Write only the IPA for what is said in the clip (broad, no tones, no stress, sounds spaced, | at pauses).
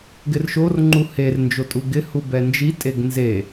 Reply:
ɡ ɪ r ʃ o r ŋ͡ǃ u h e r n d͡ʒ o tʼ u ɡ ɪ h u b ɛ n d͡ʒ i tʼ e ɡ n z e